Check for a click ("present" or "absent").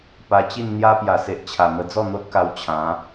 absent